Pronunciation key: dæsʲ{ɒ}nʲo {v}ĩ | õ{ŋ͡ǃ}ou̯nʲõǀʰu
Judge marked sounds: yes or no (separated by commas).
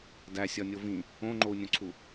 yes, yes, yes